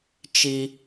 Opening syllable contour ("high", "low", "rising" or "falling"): high